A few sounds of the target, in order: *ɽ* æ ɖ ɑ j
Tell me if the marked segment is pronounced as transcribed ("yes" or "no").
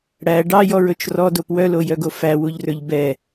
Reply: yes